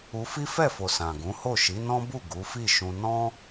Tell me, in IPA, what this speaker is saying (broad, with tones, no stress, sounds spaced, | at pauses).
u˧ f i˦ f ɛ˦˨ f o˨ s ã˨ ɡ ũ˨˦ h o˦˨ ʃ i˨˦ n ɔ̃˦ b u˦˨ ɡ u˨˦ f i˦˨ ʃ ũ˧ n ɔ̃˦